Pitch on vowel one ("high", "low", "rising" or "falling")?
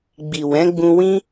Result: low